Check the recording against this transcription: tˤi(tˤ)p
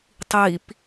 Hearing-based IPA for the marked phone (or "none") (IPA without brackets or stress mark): none